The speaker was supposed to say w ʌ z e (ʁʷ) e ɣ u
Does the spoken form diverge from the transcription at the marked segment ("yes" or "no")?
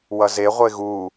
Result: no